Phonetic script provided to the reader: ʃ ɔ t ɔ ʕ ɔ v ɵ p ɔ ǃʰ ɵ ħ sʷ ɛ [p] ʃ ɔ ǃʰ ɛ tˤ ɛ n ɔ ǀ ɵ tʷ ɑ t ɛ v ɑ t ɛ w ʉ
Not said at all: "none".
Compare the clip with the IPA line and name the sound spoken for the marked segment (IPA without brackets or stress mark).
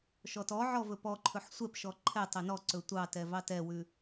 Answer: p